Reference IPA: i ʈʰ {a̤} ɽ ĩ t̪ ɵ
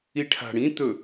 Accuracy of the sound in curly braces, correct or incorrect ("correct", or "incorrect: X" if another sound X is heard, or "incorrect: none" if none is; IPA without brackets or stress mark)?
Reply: correct